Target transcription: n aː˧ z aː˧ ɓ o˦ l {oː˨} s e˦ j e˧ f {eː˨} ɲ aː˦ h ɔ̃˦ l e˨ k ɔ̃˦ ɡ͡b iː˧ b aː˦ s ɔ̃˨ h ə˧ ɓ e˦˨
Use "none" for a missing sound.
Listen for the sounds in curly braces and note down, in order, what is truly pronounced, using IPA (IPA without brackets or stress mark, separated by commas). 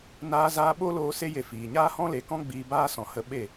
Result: oː˧, iː˨